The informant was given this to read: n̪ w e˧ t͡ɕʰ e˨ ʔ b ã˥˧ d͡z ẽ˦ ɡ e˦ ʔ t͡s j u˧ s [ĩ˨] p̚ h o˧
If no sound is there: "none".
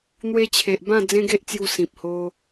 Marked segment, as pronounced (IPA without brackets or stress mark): ĩ˨